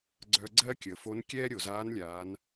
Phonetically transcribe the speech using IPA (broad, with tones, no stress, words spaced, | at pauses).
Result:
ɡ͡ǀœ˧ɡ͡ǀɜ˥kʲə˩fo˧˥n kʲɛː˥ɾʲo˩zaː˧˥nlʲaː˩˧n